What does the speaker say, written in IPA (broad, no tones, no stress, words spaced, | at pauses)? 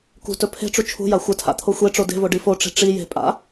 kṳtɵ pʰe̤ʈ͡ʂu t͡ʃʰṳja xʷɘtʰa̰ t̪ʰoxʷeʈ͡ʂo de̤vo ɖifoʈ͡ʂe̤ ʈ͡ʂi je̤ pʼa̰